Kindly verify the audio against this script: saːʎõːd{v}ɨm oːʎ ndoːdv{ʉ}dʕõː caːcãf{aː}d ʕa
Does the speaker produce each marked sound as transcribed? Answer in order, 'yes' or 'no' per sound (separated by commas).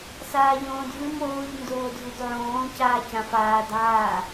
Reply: yes, yes, yes